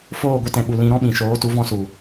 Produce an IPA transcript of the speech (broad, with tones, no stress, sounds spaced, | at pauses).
f oː˦˨ ɡʷ ɨ˧ t ɛ̃˨ ɓ u˨ l ĩ˧ ɾ ɔ̃˦ ɓ ĩ˨ ʃ oː˨˦ t u˨˦ v ɔ̃˧ s u˨